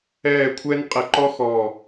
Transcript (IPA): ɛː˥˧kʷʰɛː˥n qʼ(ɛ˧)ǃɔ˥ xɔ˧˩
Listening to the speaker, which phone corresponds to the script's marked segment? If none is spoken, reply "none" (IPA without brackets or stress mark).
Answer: ɛ˧